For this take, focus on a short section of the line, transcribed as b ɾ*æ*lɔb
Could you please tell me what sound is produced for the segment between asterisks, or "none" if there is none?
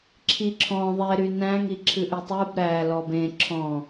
æ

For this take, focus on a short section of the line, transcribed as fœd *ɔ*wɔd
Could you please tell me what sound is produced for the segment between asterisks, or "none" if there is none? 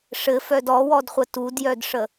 ɔ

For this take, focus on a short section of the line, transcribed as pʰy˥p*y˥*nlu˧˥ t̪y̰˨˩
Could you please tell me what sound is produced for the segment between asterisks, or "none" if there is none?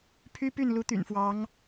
y˥˩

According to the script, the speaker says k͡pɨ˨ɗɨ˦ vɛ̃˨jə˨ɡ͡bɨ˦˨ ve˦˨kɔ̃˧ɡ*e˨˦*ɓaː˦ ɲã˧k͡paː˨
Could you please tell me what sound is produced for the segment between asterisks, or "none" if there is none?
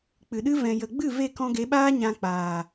e˨˦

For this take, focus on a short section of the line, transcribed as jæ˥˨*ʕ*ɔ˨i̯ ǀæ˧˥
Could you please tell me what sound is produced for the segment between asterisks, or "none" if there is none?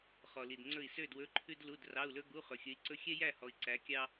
h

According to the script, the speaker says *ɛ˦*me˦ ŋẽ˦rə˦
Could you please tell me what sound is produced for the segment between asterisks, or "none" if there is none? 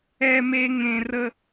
ɛ˦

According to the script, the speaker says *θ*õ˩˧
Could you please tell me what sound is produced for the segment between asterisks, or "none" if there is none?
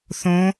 θ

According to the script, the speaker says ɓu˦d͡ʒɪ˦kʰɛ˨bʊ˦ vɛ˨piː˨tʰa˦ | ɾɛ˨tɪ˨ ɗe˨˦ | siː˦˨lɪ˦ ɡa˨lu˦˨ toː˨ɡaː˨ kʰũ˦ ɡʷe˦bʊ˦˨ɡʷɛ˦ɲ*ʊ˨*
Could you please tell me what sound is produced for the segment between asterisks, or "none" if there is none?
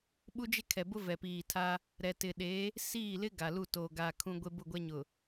ʊ˨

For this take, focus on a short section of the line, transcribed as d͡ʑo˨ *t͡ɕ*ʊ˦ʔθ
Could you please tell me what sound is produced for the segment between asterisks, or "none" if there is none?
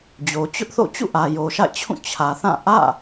t͡ɕ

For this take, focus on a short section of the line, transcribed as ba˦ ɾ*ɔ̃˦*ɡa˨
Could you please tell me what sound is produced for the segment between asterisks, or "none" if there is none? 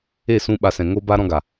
ɔ̃˦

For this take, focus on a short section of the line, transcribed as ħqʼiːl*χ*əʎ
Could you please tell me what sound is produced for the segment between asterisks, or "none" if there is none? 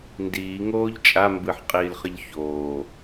χ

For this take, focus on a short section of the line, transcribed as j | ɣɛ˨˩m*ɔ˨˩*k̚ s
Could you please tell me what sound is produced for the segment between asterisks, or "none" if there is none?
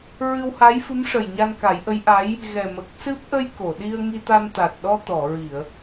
ə˨˩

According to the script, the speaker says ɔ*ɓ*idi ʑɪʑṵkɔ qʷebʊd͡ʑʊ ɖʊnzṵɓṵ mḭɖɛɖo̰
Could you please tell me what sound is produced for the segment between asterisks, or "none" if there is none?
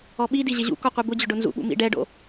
ɓ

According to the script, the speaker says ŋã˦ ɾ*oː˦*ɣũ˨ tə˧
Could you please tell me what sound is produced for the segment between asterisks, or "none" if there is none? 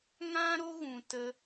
o˦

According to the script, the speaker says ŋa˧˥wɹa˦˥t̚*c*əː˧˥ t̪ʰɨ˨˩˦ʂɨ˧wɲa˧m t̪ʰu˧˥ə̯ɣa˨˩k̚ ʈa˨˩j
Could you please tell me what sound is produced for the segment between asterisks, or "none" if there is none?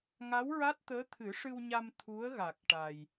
t̪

